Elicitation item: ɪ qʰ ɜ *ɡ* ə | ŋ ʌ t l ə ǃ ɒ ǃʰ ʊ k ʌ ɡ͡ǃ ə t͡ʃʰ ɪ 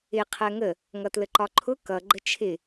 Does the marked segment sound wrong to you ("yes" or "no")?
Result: yes